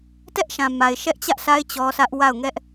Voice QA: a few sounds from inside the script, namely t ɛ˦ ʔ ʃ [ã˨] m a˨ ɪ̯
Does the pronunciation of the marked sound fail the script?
no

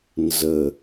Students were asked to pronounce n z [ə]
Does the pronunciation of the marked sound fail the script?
no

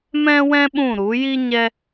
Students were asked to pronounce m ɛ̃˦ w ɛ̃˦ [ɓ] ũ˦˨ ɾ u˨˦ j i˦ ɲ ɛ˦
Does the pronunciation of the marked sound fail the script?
no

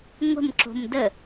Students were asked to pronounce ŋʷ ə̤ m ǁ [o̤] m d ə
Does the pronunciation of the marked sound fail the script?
no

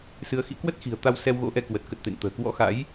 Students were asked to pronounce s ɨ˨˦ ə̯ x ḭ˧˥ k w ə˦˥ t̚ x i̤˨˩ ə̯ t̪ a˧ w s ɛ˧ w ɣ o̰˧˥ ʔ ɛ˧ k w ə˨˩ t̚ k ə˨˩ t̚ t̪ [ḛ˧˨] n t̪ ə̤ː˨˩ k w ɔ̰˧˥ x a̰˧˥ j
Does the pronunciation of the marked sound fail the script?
no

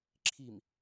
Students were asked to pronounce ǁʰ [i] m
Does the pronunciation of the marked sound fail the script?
no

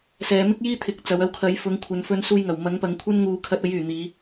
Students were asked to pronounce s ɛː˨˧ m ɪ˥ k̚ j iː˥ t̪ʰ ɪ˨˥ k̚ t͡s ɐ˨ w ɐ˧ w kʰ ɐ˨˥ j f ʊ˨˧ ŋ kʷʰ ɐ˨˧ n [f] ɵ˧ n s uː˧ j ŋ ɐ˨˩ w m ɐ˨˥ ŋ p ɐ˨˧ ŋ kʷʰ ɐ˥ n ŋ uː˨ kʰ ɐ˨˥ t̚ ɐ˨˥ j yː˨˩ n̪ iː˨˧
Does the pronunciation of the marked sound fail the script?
no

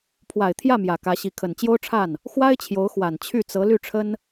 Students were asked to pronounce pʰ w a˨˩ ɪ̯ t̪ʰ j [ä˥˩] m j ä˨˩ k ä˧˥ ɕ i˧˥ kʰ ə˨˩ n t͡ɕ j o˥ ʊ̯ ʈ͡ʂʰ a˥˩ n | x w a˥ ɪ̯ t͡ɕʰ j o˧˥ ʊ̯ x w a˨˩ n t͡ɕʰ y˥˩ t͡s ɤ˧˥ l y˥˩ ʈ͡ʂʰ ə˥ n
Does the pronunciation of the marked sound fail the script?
no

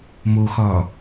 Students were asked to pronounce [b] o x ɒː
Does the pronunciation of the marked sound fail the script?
yes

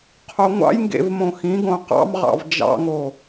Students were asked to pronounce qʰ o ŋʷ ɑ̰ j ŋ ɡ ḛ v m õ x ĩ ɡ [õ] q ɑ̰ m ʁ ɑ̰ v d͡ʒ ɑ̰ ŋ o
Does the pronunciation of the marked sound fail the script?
no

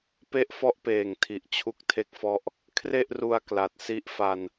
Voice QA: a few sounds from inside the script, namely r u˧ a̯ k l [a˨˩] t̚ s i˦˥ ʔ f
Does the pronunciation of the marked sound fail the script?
no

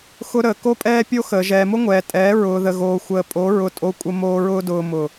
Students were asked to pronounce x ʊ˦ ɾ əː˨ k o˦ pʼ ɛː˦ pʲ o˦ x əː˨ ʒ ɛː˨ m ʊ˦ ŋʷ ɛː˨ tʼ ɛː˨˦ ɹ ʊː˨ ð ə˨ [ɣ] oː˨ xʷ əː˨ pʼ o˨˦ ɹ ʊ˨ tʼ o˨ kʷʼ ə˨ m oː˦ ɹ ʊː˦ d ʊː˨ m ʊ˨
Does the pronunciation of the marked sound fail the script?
no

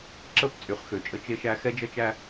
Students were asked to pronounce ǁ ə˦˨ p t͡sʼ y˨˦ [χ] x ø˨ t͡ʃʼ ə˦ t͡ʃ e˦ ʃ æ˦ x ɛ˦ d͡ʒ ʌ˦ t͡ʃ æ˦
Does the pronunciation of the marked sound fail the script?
no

